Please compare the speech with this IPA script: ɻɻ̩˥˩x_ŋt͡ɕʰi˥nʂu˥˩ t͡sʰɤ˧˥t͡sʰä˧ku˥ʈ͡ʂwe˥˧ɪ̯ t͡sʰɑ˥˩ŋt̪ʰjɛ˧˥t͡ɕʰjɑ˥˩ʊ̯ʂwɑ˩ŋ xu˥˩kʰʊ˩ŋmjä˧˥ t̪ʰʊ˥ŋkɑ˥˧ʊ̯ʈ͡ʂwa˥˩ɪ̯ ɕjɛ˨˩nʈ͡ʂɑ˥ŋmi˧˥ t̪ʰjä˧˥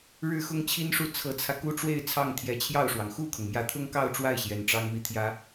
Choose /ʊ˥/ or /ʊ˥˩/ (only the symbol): ʊ˥